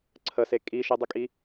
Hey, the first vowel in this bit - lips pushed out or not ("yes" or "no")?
no